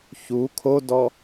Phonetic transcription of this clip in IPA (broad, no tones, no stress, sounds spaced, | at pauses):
ç u kʰ o d ɔ